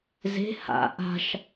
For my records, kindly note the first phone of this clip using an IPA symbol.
z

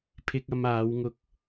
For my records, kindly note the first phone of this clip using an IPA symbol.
pʰ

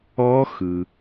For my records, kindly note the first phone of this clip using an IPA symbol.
ɔ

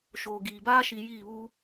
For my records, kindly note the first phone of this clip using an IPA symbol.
ʃ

